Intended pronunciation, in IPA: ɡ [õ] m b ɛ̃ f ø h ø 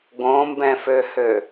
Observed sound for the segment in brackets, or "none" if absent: õ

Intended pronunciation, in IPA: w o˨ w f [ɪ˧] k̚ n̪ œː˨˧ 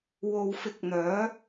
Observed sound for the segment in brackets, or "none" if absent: ɪ˨˥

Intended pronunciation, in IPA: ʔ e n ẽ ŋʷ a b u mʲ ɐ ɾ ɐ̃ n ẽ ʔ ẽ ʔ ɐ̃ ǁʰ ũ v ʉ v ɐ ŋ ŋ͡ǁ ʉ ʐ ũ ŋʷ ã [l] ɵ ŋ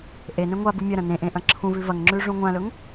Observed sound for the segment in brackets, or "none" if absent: l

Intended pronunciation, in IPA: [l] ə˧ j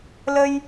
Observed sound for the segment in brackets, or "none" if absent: l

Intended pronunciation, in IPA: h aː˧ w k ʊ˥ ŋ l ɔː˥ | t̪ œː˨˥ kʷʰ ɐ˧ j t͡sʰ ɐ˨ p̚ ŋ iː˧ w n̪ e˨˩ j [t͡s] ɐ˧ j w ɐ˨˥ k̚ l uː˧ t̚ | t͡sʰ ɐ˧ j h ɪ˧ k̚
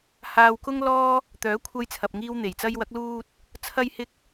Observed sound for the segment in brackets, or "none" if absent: t͡s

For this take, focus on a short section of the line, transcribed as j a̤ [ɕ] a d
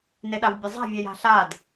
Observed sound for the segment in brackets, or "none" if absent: ɬ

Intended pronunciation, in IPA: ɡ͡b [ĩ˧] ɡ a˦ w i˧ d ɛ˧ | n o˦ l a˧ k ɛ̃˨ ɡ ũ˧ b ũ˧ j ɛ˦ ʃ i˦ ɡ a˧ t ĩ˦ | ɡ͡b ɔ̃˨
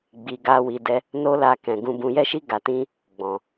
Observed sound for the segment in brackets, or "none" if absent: i˧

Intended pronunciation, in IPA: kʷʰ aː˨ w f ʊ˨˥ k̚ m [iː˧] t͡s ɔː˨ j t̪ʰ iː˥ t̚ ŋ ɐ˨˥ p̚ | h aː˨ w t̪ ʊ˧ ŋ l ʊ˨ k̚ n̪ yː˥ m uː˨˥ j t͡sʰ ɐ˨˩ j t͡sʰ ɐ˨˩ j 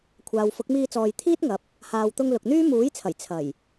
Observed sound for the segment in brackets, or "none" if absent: iː˧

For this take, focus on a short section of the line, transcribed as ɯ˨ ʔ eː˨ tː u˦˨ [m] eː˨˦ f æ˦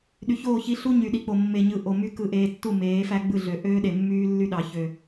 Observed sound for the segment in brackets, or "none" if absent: m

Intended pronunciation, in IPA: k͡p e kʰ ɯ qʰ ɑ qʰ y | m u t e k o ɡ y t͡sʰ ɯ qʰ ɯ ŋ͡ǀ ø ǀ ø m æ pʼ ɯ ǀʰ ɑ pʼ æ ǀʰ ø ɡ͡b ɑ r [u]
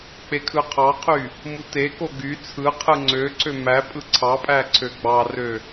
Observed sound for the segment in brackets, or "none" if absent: ø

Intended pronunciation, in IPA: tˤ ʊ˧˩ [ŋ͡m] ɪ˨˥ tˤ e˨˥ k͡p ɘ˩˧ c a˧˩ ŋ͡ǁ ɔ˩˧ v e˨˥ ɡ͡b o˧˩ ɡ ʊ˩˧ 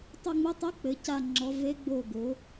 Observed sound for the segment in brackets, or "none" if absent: ŋ͡m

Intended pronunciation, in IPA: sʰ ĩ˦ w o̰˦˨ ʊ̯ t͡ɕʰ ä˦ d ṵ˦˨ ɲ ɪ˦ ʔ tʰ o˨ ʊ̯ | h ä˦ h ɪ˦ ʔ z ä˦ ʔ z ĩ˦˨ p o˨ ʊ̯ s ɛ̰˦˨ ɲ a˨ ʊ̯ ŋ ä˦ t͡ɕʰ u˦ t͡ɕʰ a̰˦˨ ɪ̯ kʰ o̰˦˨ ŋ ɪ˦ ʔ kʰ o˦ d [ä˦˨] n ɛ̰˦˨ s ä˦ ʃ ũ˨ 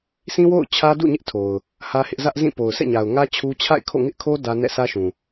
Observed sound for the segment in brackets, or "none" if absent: ä˦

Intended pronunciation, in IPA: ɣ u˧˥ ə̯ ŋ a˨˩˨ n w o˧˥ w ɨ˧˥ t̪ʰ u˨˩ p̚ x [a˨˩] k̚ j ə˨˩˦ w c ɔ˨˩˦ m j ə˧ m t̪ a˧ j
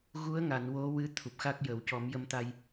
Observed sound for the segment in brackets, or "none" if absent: a˦˥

